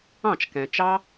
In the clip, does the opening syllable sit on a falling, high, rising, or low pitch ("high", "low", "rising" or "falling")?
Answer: falling